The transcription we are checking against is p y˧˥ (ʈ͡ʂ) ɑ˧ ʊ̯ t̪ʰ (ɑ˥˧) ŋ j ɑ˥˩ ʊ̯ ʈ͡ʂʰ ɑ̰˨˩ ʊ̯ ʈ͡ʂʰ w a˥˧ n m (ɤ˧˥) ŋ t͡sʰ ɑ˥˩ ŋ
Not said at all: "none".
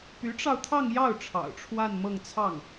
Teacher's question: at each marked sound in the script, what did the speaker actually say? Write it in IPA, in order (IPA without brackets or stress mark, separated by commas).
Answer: ʈ͡ʂ, ɑ˥˧, ɤ˥˧